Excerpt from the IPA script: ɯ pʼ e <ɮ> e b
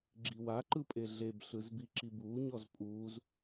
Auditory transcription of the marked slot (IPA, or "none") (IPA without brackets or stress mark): ɮ